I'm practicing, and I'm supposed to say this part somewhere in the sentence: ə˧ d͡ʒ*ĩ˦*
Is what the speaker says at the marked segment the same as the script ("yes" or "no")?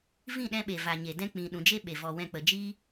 no